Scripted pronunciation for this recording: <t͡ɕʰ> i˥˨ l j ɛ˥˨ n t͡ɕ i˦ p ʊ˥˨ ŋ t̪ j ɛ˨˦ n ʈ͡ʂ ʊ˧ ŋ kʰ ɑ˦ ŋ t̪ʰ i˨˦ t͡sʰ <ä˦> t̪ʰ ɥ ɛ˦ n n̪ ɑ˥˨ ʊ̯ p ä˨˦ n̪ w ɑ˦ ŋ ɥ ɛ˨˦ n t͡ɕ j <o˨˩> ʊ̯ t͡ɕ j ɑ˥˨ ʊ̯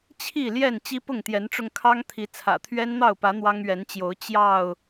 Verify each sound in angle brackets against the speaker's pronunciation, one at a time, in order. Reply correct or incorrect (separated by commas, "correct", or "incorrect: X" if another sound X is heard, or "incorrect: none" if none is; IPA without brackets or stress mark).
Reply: correct, incorrect: ä̰˨˩, incorrect: o˨˦